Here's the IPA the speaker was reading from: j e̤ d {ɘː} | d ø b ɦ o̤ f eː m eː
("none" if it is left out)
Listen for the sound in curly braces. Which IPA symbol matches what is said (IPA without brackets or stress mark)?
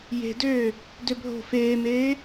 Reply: øː